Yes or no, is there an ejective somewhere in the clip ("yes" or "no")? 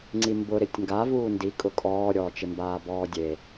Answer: yes